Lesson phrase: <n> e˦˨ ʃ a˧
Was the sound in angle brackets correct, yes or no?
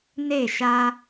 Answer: yes